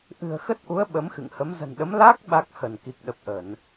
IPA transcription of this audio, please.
ʔ ɨ̤˨˩ ə̯ x ə˦˥ t̚ ʔ u˨˦ ə̯ ɓ ə˨˦ m x ɨ̰˧˨ ŋ h ə˨˦ m z ə̤˨˩ n ɗ ə˨˦ m l a˦˥ k̚ ɓ a˦˥ k̚ h ə˧˩ n k i˨˩ k̚ ɗ ə˨˩ p̚ ʔ ə˧˩˨ n

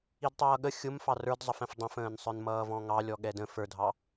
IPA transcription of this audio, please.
i d tˤ ʌː ɠ ə xʲ ʊ m f ɑ r ə˞ d zˤ ʌ f ɛ̃ f dˤ ɛ̃ f ə̃ː n sˤ ə˞ n m ʌː v ɔ̃ ŋ ɑ lʲ ɔ ɠ ɛ d ə̃ f ə˞ dʱ ɑ

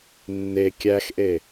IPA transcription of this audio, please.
nː e kʲ æ x ʔ e

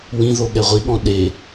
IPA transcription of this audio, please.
w ĩ ð o ɠ ɛ ʁʷ i ɠ ɔ̃ ɗ e

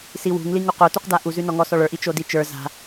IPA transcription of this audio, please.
s i w ṳ ŋ l i ŋ u q o t u q d a ʔ u z ʉ n ɔ ŋ ɔ s ɔ ɭ ə˞ ʔ i t͡ʃ o d i t͡ʃ ə˞ z a̤

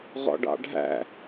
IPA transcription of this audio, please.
ʁ ɔ̰ ɖ ɑ̰ ɖʱ æ̰

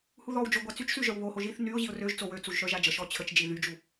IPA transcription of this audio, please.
h u ð ɔ w d͡ʒ o ɡʷ a t͡s y t͡ʃ s y ʒ œ w β o h o ʒ i θ n y ʊ̯ ʑ i ʊ̯ r ø ʒ t͡s o w ø t͡s u ʒ ʃ œ ʒ a d͡ʒ ə ʃ ɔ t͡ɕʰ ə t͡ʃ d͡ʒ i ð y d͡ʒ u

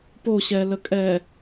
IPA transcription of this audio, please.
p o ɕ ɛ l ə kʼ ɛ

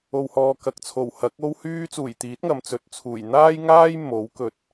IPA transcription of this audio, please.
o˨ w h ɔː˨ k ɐ˨ k̚ t͡sʰ o˨˩ w h ɐ˨˥ k̚ o˥ w h yː˥ t͡s uː˨˩ j t̪ iː˨˥ t̚ ŋ ɐ˨ m t͡s ɵ˨˥ t̚ t͡sʰ uː˨˩ j n̪ aː˥ j ŋ aː˥ j m o˨˥ w k ɵ˧ t̚

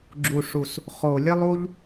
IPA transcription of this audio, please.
ɡ͡ǁ u˨˩ ʂ u˨˩ s | χ o˨˩ lʲ ɘ˦ lˠ u˦ ʎ

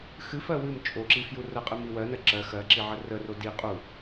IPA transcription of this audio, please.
x ɨ f ɜ w ɨ m t͡ʃʼ o ǁ i f j u r ə qʼ ɨ m i w ɜ n ɜ ǁ ɜ x ɜ ǁ i ʕ ə r ə r o d i qʼ u

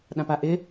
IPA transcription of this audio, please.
ɗ ã p a ʔ ɪ

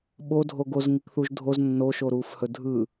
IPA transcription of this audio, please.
ɓ o dʱ o ɡ o z ŋ i k θ u ʒ dʱ o z nː o ʃ o ɾ uː f h ɵ dʱ ɯ

